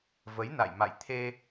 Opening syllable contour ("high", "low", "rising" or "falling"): rising